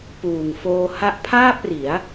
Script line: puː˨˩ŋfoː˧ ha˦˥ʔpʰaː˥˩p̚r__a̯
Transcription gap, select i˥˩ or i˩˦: i˩˦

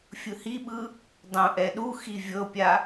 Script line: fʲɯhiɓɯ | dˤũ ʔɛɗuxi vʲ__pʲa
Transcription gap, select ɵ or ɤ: ɤ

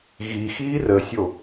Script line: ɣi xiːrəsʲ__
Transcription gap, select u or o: o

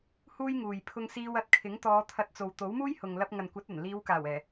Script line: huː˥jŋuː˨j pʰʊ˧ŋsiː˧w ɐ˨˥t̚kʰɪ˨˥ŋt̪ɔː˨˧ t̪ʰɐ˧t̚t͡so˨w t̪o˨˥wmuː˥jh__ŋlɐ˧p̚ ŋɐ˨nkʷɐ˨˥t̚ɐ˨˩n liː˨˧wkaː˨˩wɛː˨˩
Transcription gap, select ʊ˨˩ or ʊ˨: ʊ˨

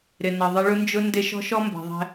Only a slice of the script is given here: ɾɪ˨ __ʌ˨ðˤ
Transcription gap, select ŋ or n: n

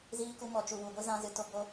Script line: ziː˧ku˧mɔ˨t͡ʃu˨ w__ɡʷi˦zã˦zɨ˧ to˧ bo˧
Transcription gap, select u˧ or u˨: u˨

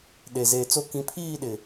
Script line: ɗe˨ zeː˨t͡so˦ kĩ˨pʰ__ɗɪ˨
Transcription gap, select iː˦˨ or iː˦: iː˦˨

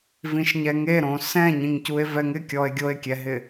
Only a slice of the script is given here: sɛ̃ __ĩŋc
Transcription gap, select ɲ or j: ɲ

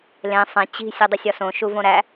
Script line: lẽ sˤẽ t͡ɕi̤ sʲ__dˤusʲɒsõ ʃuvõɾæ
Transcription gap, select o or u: o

